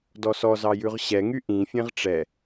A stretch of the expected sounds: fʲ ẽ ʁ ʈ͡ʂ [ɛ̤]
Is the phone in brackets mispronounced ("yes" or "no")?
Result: yes